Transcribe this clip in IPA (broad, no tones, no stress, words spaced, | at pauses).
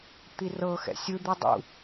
t̪irɤxɛ̰ sʲɯd̪i dˤṵ